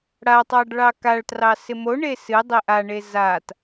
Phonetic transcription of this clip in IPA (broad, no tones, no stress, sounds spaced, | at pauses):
ɽ a tˤ ɑ ɖ ɭ ɑ k a ɭ t r ɑ s ɪ m o ɳ e s ɨ dˤ e ʔ a ɳ e z a t